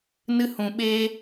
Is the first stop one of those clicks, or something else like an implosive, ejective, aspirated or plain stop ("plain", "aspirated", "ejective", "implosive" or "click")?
implosive